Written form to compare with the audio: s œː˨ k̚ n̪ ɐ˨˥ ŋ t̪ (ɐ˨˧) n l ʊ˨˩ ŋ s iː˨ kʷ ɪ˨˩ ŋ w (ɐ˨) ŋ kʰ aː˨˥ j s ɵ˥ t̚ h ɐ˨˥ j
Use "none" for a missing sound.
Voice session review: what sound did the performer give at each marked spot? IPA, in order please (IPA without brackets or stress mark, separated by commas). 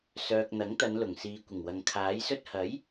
ɐ˨˧, ɐ˨